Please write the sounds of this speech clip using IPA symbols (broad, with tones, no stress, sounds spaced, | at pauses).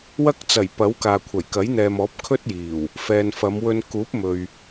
w ɐ˥ k̚ t͡s ɐ˨˩ j p ɐ˨˥ w k aː˨ kʷʰ ɐ˨˩ j k ɐ˨˥ j n̪ ɛː˨ m ɔː˨˥ p̚ kʰ ɵ˥ t̚ j iː˨˩ w | f ɛː˨ n f ɐ˨˧ m w ɵ˧ n k uː˨˥ p̚ m ɵ˨ ɥ